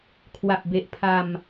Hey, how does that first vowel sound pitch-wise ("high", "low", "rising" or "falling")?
low